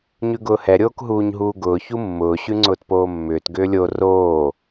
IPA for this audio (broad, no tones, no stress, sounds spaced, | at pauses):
ɲ ʉ ɡ ʊː h ɛ ɾʲ oː k ɦ uː ɲ ɦ uː ɡ ʊː ç u mː ʊː ɕ ʉ ŋ͡ǀ ʊː t p oː mː ʏː t ɡ ʏː lʲ o r oː